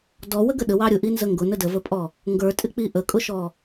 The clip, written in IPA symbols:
d ɔ w ə ɡ ə ɗ ə w ɑ ɾʲ ʊ ʔ i n z ə ŋ ɡ ʊ n ə d ə v ə pʼ ɔ | ŋ ɡ ə˞ tʼ ɪ k͡p i ʔ ə kʼ ʊ ʃ ɔ

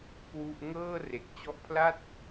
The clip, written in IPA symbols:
k w u˥˩ ʔ ŋ ɤː˥˩ r e˨˩ k̚ t͡ɕ ɔ˦˥ ʔ pʰ l a˥˩ t̚

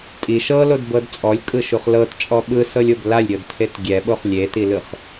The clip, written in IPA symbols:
tʼ i ʃ ɤ l o d b ɤ d t͡sʼ ɔ lʲ kʼ ɯ ʃ u χ l ɤ t t͡ʃʼ ɔ ɓ ɯ s ɤ lʲ o b l a lʲ ɾʲ ɤ d tʰ e t ɡʲ ɛ ɓ o χ lʲ e t i l ɯ χ

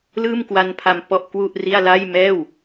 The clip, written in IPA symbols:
l ɯː˥˩ m k w a˦˥ n pʰ a˧ m p ɔ˥˩ ʔ k w u˥˩ ʔ r i˥˩ a̯ l a˥˩ j m ɛː˥˩ w

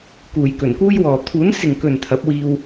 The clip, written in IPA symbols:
k uː˨˩ j k ɵ˨˩ n k uː˥ j w ɔː˨ t̪ʰ uː˨˥ n s ɪ˨ ŋ k ɵ˨ n t̪ʰ ɐ˨˥ p̚ w iː˧ w

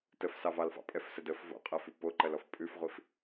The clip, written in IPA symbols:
t ə f s ɑ v ɑ l f ɑ̰ pʼ ɛ f s ə d ə f v o̰ qʼ ɜ f ʉ p o ǃ ɜ l ɔ f pʼ ʉ f ʁʷ i f

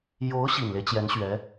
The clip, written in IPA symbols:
j o˧˥ ʊ̯ ɕ i˨˩ n l e˦ ɪ̯ t͡ɕ j ɛ˧˥ n ɕ ɥ ɛ˧˥

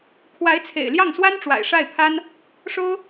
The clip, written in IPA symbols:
kʰ w a˧˥ ɪ̯ t͡sʰ ḛ˨˩ ɪ̯ l j ɑ˥˩ ŋ s w a˥ n ʈ͡ʂ w a̰˨˩ ɪ̯ ʂ a˥˩ ɪ̯ pʰ a˥ n | ʂ o˥ ʊ̯

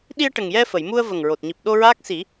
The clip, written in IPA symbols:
ɗ i˧ ə̯ ʈ ə˨˩ ŋ j ɛ˧ f ə˨˩˨ j m u˧ ə̯ v ə˨˩ ŋ ɹ o˨˩ t̚ ɲ i˨˩ p̚ ɗ o˧ ɹ aː˦˥ k̚ s i˨˩˦

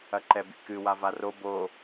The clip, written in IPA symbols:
ɐ ǃ ɛ b ḭ k ɨ w a v a r o b o

